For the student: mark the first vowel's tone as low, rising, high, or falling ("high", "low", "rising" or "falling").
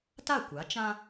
falling